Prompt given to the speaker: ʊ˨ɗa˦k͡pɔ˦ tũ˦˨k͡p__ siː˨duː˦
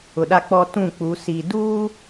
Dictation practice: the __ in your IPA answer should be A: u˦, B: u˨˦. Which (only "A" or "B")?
B